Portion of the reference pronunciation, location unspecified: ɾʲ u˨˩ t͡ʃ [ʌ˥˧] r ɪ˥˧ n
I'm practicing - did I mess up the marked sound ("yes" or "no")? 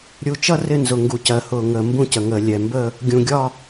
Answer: no